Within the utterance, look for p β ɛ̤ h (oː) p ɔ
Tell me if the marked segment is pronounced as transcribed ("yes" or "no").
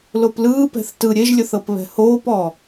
yes